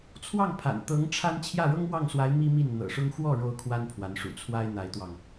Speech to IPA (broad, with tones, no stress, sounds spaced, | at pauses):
t͡sʰ w ɑ˥˩ ŋ pʰ a̰˨˩ n t̪ ɤ˧˥ ŋ ʈ͡ʂʰ a˥ n t͡ɕʰ j ä˥˩ ɻ ɤ˥ ŋ m w ɑ˥˩ ŋ s w a˧˥ ɪ̯ m i˥ m i˥˩ n n̪ ɤ̰˨˩ ʂ ʊ˥ ŋ x w ɔ˥˩ ɻ o˥ ʊ̯ kʰ w a˥ n pʰ w a˧˥ n ʂ ṵ˨˩ t͡sʰ w a˥ ɪ̯ n̪ a˧˥ ɪ̯ t̪ w ɑ˧ ŋ